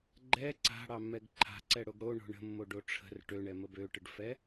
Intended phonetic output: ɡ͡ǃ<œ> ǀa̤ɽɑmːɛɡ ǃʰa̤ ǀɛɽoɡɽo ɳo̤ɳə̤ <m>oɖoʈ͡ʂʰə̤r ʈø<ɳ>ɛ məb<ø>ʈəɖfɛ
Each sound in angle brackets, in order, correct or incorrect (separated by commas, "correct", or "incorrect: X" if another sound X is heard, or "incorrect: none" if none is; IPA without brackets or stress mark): incorrect: ɛ, incorrect: mː, correct, correct